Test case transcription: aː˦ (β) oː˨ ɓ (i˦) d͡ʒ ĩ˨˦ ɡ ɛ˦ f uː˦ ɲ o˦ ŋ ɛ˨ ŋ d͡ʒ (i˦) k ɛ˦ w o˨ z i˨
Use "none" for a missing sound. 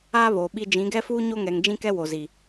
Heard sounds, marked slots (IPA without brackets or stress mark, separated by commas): β, i˦, ĩ˦